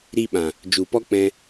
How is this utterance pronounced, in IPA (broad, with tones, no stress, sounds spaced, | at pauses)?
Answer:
ɾ i˧ ɓ ã˨ | d͡ʒ u˨ p ɔ˦ k͡p ɛ̃˧